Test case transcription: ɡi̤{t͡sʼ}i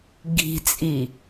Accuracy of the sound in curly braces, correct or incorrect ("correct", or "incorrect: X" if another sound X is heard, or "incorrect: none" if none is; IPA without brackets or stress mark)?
correct